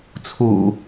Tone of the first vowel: low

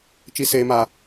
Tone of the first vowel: high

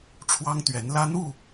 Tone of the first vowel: high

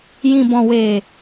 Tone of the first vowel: low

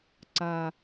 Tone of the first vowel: low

